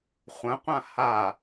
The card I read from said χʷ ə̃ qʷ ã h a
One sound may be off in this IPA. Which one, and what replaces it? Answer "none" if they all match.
none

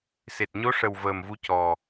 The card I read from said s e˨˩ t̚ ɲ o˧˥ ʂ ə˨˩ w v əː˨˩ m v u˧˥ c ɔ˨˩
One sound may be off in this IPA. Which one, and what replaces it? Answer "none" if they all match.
none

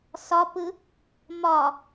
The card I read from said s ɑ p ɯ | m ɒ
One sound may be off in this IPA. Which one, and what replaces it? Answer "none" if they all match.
ɑ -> ɒ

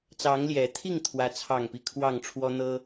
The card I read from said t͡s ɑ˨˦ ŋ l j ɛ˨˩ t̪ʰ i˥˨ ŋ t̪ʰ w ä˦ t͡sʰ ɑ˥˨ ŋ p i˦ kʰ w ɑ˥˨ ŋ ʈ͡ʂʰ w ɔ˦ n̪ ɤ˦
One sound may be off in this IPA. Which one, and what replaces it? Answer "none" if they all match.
none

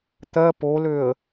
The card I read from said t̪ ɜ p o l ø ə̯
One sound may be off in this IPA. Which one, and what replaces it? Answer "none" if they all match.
none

